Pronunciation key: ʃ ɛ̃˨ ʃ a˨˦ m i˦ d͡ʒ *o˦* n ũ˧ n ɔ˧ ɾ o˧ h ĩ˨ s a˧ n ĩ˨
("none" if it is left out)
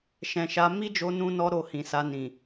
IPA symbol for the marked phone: o˧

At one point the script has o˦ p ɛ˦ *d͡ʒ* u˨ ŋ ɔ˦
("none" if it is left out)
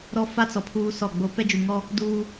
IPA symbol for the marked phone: d͡ʒ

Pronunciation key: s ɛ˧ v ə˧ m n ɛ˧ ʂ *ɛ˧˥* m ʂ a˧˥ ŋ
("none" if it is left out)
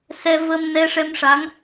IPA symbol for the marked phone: ɛ˧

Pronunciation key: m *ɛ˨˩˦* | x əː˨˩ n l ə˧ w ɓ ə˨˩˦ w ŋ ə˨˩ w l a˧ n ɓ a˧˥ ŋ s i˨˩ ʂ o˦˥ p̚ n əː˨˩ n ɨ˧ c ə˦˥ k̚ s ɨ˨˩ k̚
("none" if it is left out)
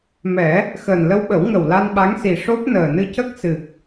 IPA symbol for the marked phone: ɛ˨˩˦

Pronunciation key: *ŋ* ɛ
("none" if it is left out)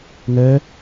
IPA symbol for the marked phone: ŋ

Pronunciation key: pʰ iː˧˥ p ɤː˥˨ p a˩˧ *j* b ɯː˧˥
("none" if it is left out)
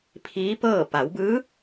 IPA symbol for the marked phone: w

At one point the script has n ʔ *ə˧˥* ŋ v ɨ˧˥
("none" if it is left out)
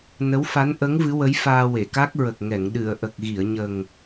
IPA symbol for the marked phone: ə˧˥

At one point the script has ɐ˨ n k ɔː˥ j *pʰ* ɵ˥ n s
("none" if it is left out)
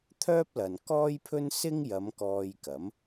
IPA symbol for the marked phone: pʰ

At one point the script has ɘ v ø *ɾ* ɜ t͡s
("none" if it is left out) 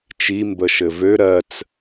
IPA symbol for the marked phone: ɾ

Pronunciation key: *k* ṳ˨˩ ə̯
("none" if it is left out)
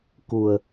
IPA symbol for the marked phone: k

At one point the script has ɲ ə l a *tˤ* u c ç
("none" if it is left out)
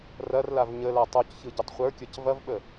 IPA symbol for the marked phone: tˤ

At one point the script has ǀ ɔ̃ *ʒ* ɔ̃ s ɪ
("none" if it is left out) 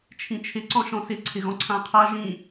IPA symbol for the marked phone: ʃ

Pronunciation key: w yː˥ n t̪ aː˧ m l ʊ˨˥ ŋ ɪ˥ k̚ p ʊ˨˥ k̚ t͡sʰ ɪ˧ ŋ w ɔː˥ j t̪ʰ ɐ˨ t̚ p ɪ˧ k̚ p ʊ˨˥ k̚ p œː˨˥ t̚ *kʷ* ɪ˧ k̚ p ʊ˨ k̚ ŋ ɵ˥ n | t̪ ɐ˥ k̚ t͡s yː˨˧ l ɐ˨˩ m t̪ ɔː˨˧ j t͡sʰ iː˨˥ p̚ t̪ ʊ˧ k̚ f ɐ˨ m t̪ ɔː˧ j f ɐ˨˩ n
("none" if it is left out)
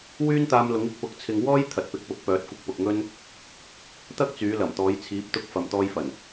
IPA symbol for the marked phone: kʷ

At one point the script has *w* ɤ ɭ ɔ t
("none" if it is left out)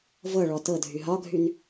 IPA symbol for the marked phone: v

